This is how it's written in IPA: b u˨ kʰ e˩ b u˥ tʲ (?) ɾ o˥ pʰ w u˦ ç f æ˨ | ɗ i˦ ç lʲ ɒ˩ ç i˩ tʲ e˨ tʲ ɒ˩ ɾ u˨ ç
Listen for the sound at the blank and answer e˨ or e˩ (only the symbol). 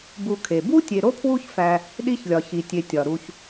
e˨